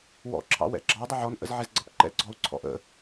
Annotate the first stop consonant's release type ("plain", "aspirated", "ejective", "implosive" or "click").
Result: click